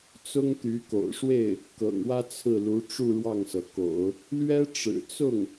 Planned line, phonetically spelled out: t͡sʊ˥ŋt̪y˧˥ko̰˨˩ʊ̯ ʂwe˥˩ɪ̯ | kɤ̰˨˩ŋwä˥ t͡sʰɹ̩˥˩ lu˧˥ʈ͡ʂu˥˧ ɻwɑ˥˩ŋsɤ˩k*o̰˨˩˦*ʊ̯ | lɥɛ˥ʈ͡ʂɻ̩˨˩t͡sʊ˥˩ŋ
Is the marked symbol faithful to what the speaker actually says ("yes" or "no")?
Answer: yes